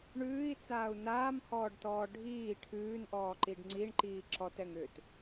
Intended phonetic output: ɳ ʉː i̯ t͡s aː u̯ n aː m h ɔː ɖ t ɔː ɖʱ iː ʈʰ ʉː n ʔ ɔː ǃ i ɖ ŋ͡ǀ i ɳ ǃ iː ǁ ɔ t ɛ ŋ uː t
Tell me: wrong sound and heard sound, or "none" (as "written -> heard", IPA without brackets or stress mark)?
uː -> ʏː